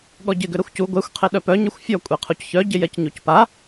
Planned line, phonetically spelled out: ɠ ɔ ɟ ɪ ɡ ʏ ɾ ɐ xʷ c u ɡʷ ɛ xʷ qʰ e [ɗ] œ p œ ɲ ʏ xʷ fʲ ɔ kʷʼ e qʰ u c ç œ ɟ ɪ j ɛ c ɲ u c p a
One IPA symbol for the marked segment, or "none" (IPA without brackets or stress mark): ɗ